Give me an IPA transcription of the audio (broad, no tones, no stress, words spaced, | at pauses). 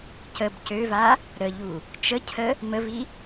cəb cøva | ɾəʎu | t͡ʃəcʰə | məvi